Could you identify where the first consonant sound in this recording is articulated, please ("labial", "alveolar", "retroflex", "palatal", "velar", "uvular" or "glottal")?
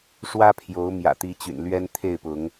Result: retroflex